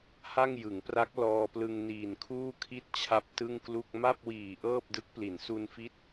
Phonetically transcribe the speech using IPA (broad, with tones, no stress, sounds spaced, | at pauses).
h a˥˩ ŋ j ɯ˩˦ ŋ p r a˦˥ k̚ l ɔː˧ p l ɯ˧ ŋ n iː˨˩ n kʰ uː˥˩ kʰ i˥˩ t̚ t͡ɕʰ a˦˥ p̚ t ɯ˥˩ ŋ k l u˥˩ k̚ m a˥˩ p̚ w iː˨˩ ʔ ɤː˥˩ p̚ d ɯ˦˥ k̚ p l i˩˦ n s u˧ n f i˦˥ t̚